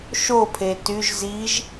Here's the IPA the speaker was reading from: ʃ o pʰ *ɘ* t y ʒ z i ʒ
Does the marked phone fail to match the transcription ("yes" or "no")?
yes